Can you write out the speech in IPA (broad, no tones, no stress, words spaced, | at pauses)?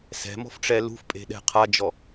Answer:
sɛ̤mɔ̤fʈ͡ʂɛ lṳfpʼe̤ɗɛ̤ qʰad͡ʒɔ